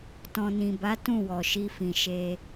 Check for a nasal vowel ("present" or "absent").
present